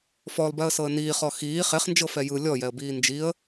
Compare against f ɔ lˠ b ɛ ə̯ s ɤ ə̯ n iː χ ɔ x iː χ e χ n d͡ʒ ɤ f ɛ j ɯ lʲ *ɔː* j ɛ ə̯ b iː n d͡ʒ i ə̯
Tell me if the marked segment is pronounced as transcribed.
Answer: no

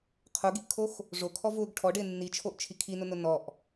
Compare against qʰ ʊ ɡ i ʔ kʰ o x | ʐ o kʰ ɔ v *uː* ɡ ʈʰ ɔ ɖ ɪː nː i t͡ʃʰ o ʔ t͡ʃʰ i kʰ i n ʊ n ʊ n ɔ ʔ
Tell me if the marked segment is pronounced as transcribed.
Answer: no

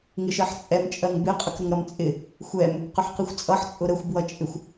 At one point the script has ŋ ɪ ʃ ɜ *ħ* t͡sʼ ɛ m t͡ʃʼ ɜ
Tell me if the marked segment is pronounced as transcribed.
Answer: yes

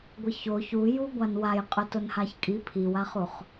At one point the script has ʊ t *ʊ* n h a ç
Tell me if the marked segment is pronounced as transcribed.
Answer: yes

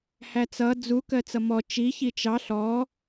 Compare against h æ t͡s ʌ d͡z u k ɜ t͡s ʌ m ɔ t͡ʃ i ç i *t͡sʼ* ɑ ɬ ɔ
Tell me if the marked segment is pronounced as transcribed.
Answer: no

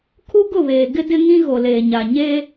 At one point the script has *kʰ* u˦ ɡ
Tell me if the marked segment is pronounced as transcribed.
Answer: yes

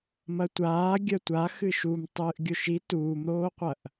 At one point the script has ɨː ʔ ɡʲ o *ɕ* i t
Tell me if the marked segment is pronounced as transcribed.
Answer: no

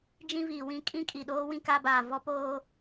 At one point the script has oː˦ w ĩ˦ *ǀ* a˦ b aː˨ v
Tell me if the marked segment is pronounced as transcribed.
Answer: no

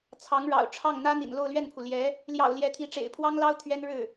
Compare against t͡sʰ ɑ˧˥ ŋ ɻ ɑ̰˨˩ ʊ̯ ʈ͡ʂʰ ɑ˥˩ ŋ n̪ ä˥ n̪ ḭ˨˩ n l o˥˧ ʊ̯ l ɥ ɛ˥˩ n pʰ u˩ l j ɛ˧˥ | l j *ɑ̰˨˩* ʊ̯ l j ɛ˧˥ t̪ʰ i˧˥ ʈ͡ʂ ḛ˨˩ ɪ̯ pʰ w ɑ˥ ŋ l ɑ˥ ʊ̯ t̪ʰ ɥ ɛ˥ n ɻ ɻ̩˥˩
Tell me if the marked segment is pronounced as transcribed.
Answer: yes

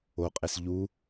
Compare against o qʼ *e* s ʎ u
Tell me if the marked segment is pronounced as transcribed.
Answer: yes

